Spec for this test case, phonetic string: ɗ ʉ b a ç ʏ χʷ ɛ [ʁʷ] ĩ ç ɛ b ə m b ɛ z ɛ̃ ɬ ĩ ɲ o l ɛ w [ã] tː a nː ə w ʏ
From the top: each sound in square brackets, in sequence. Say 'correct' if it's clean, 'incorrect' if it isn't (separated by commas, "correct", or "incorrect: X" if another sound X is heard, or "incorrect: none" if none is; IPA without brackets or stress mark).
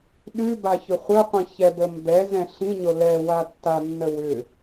incorrect: qʷ, incorrect: a